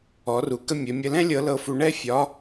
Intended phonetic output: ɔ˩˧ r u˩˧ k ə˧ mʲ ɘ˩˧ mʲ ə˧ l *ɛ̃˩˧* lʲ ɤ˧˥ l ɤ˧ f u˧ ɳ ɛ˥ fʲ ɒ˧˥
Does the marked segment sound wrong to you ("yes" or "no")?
yes